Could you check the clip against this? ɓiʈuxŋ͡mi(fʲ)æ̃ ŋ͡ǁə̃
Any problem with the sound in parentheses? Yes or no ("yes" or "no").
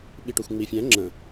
no